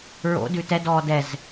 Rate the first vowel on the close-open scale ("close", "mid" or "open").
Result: mid